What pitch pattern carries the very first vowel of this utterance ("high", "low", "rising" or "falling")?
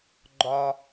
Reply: high